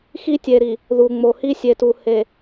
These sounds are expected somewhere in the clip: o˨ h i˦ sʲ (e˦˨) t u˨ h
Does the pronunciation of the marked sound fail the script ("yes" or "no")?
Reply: yes